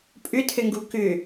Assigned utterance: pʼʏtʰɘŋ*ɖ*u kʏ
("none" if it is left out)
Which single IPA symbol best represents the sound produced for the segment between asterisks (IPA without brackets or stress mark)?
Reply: ɡ